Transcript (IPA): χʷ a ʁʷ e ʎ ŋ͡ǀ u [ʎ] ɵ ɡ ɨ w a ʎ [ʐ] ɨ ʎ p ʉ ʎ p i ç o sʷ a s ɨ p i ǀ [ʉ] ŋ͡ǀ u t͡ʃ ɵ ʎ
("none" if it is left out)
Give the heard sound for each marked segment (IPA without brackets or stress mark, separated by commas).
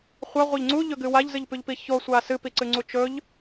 ʎ, z, ɨ